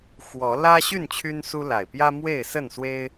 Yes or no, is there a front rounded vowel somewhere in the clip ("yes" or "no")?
yes